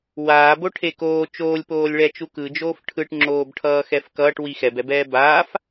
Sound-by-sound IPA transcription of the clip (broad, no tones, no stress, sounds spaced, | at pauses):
w aː b o ʈʰ e k oː t͡ʃ oː lʲ p oː lʲ ɭ ɛ t͡ʃ u k ɯ d͡ʒ oː f ʈʰ ɯ ʈ ŋ͡ǁ oː b ʈʰ ʌː x ɛ f k ʌː ʈ w i x ɛ b ɛ b ɛː b aː f